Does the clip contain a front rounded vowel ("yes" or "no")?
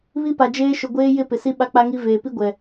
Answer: no